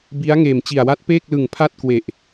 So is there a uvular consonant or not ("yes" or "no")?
no